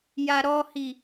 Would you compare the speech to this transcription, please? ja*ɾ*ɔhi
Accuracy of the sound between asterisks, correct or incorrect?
correct